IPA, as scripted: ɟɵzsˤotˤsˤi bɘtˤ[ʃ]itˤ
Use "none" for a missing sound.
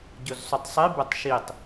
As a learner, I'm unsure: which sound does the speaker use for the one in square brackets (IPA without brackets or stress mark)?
ʃ